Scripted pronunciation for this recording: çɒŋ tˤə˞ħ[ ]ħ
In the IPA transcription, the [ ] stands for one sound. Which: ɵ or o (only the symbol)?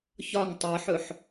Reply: ɵ